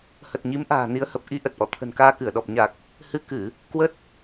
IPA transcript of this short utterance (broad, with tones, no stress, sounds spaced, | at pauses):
h ə˨˩ t̚ ɲ i˨˦ m ʔ a̤ː˨˩ n i˨˦ ə̯ h ə˨˩ p̚ ʔ i˧ ʔ ə˨˩ t̚ ʔ ɔ̰˧˨ t̪ʰ ə̤˨˩ n k aː˧ k ɨ˧˩ ə̯ ɗ ɔ˨˩ p̚ ɲ a˨˩ k̚ | h ɨ˧ k ɨ˧˩˨ | k w ə˦˥ t̚